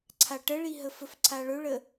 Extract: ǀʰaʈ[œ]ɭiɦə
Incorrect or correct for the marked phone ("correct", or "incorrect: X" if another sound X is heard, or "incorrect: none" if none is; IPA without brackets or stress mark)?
incorrect: ə